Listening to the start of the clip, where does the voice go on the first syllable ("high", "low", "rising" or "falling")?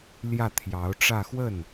falling